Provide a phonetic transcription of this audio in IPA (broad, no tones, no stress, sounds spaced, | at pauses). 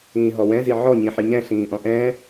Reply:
ĩː ɦ ɔ w ɛ̃ z i ʕ ɔ ɲ ĩ ħ i ɲ ɛ̃ ɬ ĩː ʔ ɔ̃ ʔ ɛ̃ː